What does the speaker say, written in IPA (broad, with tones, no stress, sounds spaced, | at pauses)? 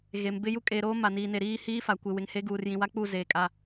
ɣ e˨ m b ɪ˦ j u˦ kʼ e˨ ɾ oː˦ m a˨ n iː˨ n e˨ ɾ iː˦ h iː˦ f a˨ kʷ ɪ˨ w ɪ˨ ŋ h e˦ ɡ uː˨ r j ĩ˨ w a˦ k͡p u˦˨ z eː˨ kʼ a˨